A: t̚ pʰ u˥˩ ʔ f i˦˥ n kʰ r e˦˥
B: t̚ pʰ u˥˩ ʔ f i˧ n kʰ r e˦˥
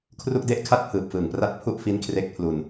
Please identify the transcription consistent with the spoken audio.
A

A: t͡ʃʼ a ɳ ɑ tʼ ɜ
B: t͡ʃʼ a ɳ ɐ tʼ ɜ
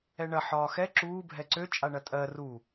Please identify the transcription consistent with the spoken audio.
B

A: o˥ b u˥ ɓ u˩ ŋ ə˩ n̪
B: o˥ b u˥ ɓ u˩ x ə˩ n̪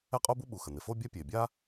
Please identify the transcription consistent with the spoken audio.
B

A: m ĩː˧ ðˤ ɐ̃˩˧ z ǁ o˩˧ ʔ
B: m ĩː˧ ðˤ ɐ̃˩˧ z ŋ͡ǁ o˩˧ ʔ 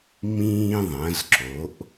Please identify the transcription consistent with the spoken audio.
A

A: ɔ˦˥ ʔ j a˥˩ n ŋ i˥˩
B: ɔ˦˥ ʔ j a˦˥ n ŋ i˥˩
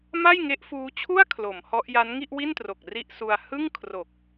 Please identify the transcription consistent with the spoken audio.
B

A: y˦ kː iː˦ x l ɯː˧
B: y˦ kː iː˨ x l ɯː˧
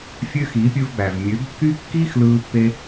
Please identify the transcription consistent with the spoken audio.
A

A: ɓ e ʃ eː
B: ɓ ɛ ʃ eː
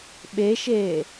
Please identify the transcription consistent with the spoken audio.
A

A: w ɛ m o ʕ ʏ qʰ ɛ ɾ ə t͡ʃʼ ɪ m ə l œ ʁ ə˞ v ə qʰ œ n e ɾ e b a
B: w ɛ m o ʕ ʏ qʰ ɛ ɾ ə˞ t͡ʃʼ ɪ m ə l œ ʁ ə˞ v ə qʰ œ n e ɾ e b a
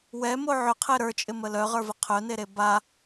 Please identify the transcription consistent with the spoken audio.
B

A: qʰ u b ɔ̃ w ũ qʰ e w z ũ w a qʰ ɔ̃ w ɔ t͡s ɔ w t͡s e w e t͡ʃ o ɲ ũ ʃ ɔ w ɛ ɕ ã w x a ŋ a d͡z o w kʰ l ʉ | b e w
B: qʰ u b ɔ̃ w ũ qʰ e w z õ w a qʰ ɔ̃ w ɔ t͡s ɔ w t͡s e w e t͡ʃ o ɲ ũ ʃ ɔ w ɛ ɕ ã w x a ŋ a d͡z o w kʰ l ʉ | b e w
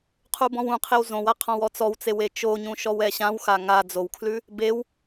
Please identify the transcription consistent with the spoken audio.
B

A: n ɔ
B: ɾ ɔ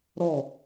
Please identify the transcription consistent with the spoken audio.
B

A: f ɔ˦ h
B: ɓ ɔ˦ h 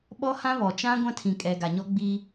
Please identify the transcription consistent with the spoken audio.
B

